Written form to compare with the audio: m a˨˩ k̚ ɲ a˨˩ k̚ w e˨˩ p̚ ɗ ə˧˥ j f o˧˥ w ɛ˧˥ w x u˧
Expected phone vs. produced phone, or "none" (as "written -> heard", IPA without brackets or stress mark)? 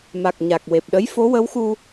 ɛ˧˥ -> ə˧˥